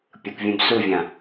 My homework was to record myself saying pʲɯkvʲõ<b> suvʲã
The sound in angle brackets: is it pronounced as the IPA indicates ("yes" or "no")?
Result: yes